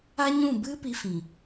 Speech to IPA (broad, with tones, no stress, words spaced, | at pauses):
a˦ɲũ˦˨ bɨ˦ pi˧fĩ˨